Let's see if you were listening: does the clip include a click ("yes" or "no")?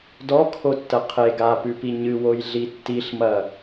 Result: no